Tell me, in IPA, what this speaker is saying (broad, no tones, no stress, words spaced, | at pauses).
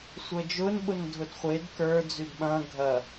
sʷəːd͡ʒʊːn ɓʊndʱʊdχʷed kə˞ d͡zydɓɐ̃ː ɡʱɐ